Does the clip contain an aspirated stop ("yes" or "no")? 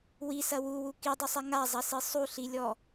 no